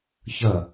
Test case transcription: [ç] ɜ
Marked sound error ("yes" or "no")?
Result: no